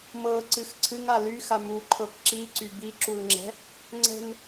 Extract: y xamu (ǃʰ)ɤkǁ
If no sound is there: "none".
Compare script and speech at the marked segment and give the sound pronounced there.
ǃʰ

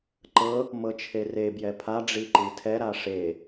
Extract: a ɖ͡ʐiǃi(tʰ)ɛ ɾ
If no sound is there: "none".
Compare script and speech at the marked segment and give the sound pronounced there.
tʰ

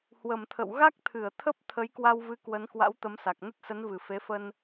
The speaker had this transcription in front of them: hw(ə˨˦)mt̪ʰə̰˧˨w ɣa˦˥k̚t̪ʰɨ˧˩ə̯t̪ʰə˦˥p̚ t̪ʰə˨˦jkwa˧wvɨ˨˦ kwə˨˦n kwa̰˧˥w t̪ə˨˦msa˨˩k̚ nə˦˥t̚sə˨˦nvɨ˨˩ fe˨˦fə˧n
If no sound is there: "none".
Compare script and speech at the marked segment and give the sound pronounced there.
ə˨˩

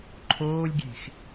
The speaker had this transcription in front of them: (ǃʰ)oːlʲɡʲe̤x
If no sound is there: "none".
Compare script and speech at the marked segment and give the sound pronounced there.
ǃʰ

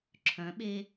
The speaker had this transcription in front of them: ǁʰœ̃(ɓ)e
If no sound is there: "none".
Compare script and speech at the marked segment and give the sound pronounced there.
ɓ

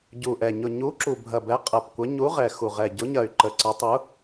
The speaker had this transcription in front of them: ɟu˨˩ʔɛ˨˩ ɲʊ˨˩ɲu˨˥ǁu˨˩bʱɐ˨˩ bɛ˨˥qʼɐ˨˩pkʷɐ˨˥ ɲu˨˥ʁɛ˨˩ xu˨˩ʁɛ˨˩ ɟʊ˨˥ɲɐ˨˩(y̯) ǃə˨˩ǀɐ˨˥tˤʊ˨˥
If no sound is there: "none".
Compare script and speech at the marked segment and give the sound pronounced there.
y̯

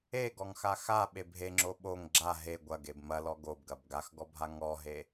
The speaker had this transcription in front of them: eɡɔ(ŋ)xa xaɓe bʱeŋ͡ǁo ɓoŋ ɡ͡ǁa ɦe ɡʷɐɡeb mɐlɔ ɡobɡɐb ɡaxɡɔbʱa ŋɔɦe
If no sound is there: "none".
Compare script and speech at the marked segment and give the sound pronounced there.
ŋ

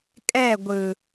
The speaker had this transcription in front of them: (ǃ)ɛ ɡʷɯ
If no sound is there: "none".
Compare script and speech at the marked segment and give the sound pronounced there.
kʼ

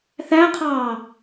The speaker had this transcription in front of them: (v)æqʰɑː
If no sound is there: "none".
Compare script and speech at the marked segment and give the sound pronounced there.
θ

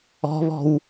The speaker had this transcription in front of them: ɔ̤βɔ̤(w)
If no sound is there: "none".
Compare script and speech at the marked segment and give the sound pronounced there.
w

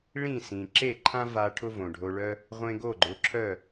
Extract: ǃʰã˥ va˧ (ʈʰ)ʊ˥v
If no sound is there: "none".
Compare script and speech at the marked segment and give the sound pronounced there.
ʈʰ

